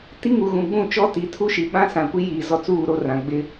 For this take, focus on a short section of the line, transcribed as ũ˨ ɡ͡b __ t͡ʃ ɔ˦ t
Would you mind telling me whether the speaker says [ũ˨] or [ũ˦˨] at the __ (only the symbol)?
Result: ũ˦˨